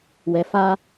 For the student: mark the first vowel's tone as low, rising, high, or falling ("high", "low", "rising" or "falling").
low